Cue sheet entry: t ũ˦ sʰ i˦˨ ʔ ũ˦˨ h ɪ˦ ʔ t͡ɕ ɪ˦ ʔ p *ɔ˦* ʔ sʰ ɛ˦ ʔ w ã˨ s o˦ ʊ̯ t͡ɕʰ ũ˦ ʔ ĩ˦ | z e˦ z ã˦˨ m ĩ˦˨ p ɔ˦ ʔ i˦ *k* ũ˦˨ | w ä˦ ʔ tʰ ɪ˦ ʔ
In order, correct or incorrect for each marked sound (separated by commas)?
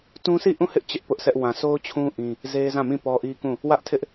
incorrect, correct